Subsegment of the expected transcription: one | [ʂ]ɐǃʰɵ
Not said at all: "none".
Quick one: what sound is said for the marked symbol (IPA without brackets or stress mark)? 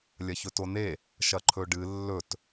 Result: ʃ